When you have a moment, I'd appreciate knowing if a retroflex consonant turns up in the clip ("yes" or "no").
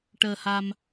yes